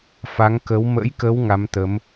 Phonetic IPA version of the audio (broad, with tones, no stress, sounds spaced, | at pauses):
f a˨˦ ŋ k ə˨˦ w m ə̰˧˥ j k ə˨˦ w ŋ a˨˦ m t̪ ə˨˦ m